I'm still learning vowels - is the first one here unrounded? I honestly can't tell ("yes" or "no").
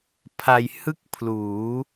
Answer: yes